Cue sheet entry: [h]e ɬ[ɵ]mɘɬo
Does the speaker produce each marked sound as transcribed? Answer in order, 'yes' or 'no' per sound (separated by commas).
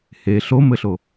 yes, no